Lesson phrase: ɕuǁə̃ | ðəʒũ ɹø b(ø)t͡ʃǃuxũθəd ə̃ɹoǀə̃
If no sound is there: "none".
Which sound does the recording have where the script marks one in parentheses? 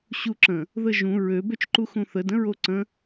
ø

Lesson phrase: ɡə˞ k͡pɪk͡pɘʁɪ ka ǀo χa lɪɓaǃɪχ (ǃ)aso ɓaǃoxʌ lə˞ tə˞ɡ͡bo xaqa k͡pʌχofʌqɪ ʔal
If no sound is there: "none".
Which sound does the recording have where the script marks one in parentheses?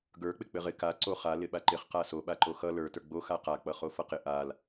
q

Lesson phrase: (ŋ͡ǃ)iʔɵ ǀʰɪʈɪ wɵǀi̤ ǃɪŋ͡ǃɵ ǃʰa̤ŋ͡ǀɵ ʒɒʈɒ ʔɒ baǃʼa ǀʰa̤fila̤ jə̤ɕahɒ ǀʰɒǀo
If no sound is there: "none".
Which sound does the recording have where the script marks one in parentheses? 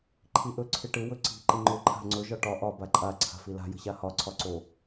ǃʰ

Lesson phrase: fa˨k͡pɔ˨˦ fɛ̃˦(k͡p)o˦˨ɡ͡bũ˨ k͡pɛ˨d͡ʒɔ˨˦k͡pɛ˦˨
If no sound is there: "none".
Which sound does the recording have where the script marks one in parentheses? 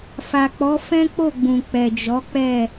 k͡p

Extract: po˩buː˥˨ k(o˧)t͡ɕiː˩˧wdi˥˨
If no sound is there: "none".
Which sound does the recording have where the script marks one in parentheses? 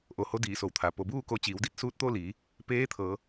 o˧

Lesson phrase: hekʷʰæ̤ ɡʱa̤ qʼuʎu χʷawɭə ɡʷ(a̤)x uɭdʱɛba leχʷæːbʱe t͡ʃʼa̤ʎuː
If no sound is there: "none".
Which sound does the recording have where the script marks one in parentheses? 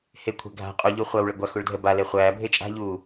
a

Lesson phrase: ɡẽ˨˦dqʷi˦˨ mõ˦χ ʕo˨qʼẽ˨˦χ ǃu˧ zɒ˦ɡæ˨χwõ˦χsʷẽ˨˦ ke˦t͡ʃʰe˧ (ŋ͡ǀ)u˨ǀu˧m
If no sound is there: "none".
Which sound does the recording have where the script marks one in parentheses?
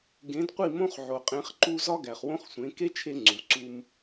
ŋ͡ǀ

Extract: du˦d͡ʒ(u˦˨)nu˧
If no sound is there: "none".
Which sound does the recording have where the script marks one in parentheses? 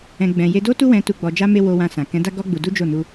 o˦˨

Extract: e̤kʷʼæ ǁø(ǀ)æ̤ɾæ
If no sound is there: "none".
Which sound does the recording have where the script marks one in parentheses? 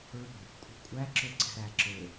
ǀ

